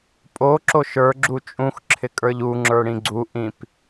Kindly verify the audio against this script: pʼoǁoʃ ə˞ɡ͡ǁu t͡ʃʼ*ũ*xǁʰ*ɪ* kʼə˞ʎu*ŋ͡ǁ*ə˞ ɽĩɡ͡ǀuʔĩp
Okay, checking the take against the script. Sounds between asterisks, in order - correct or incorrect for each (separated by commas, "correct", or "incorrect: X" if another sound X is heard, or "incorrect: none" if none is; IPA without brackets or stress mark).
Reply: correct, correct, correct